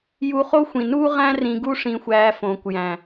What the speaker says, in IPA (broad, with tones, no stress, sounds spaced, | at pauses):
j u˧ χ o˦ xʷ ĩ˨ n uː˦ ʁ æ̃˦ r ĩ˧ ɡ u˦ ʂ ĩ˧ xʷ æː˧ f õː˨ kʷ j æ̃˨